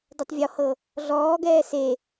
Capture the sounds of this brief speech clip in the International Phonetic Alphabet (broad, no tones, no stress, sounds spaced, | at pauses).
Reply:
d ɛ tˤ vʲ ɔ h ɤ | ɮ ɔː ɡ ɛː s e